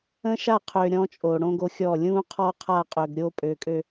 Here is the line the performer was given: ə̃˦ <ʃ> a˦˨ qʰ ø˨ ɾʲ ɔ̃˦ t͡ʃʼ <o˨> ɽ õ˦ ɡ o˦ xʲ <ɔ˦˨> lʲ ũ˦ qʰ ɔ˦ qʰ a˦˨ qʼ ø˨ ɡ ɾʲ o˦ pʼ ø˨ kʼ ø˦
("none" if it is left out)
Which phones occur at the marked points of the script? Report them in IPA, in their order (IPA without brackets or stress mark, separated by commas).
ʃ, o˨, ɔ˦˨